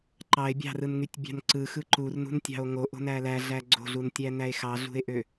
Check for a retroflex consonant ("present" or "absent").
absent